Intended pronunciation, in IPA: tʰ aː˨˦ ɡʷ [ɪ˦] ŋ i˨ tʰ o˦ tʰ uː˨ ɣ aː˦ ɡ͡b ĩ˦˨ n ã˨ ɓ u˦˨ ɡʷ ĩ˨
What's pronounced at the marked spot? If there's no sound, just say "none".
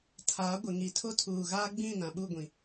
ɪ˨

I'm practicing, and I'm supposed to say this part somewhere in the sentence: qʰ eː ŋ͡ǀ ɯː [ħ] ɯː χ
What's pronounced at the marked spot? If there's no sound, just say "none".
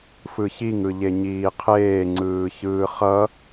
ç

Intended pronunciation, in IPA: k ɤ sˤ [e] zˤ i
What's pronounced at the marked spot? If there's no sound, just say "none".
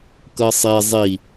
e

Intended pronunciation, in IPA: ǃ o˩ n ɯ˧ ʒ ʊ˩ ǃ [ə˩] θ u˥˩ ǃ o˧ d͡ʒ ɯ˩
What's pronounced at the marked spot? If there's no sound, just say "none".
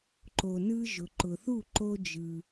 ʊ˩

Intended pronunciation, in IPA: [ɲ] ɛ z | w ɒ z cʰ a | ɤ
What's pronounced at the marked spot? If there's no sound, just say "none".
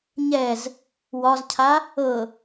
ɲ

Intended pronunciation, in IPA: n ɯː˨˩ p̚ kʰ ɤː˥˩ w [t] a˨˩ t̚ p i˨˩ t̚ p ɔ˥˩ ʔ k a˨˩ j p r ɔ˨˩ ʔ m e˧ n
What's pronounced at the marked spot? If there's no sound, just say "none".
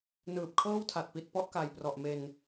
tʰ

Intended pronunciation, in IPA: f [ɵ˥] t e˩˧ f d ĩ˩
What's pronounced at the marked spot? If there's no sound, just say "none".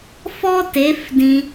ɔ˥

